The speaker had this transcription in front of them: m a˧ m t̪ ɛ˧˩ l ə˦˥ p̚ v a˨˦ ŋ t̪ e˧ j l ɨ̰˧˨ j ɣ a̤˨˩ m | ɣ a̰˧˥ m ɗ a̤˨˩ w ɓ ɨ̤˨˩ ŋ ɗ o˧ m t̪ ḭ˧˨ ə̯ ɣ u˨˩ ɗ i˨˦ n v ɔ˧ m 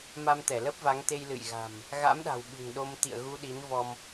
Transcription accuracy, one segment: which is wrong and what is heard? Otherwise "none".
u˨˩ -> u˧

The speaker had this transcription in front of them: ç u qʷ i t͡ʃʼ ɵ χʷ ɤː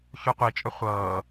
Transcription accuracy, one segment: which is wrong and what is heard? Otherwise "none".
none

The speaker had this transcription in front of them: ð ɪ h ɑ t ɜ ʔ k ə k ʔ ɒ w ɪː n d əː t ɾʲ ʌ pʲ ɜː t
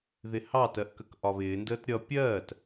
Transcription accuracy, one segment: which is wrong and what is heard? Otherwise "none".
w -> β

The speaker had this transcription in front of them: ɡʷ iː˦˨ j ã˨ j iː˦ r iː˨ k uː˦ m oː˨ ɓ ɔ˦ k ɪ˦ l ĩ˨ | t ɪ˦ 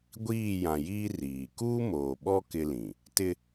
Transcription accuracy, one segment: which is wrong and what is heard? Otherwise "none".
none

